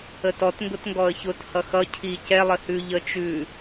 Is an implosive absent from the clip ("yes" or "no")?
yes